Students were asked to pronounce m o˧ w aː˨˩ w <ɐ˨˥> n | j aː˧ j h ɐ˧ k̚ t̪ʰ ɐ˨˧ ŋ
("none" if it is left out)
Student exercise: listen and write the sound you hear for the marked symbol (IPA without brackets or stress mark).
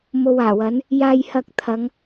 ɐ˨˥